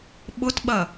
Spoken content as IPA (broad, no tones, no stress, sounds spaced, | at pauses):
ɓ ʊ t ɓ ɐ